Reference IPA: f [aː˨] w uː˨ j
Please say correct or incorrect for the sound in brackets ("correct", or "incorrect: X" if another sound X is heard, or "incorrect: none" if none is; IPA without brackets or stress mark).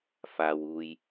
correct